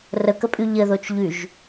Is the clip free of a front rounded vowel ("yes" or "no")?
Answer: no